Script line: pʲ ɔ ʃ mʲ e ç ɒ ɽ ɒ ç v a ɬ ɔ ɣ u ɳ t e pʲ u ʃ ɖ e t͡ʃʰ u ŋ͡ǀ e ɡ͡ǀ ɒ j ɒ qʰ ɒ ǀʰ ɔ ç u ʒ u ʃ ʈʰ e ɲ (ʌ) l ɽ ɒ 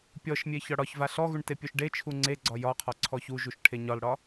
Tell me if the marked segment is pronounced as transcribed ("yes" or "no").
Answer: no